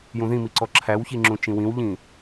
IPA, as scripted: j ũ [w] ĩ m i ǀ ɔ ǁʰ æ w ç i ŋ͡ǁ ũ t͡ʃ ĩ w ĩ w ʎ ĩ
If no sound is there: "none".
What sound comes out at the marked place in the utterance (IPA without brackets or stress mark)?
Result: ð